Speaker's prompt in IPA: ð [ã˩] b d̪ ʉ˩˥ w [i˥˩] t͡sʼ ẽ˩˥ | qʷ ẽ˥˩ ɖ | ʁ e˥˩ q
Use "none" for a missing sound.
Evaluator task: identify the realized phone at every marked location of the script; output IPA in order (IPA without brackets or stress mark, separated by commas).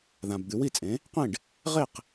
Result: ã˩, i˥˩